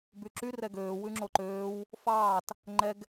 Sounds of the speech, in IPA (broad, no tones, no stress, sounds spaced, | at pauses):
b y ǁ y r ɛ ɡ øː w ʉ ŋ͡ǁ o ǃ øː w | f ɑː t | ŋ͡ǃ ɛ ɡ